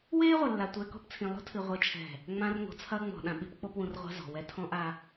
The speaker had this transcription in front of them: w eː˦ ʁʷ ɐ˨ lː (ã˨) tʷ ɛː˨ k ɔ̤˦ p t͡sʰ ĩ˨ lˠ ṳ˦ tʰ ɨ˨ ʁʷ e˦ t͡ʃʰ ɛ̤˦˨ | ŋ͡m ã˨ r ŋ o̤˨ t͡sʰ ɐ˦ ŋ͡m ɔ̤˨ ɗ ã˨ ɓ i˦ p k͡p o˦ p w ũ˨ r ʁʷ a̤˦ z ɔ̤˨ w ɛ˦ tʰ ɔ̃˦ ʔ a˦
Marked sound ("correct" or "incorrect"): incorrect